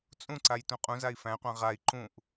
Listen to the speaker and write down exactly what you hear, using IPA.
t͡sʼũǀaj tũqʼũzai̯ fæ̃qʷã ʁai̯ ǃũʔ

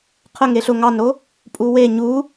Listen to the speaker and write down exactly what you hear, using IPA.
qʰə ŋeɬʊ ŋɑnɾo | pʼuwe ɲu

